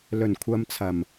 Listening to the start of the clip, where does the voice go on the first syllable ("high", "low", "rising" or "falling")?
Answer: low